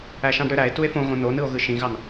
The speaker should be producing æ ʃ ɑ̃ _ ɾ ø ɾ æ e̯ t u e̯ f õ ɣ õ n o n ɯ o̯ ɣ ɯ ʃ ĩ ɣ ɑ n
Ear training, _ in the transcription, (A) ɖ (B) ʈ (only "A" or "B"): A